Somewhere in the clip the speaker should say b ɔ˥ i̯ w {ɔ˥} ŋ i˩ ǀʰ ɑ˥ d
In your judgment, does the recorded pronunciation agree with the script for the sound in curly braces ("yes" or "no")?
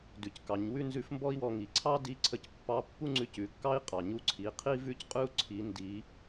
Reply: no